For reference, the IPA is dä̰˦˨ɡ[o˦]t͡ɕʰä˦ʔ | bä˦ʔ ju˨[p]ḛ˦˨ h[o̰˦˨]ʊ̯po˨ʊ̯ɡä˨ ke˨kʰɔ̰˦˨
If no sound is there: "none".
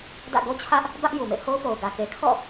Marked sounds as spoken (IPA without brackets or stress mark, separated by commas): o˦, m, o˦